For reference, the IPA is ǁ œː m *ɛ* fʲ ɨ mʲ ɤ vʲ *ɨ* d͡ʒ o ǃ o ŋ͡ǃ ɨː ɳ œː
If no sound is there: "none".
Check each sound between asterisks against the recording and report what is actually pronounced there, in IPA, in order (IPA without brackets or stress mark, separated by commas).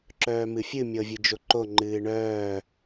ɨ, ɨ